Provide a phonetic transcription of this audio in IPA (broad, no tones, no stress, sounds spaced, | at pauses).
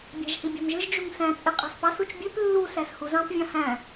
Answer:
bʲ æ̤ ʒ h i bʲ ɑ̤ m ʒ ɯ ʒ d͡ʒ u ŋ s æ̃ t͡sʼ i qʼ ɑ̤ s p ɑ s u t͡ʃ bʲ ø p lː u s æ s h u z ɑ̃ p vʲ ɑ̃ h æ̃